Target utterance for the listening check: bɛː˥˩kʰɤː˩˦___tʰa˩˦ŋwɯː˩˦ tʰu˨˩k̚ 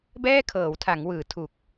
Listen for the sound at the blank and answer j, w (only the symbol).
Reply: w